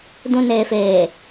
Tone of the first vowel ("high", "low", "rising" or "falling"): low